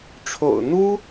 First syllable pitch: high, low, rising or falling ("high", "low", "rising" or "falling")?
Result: low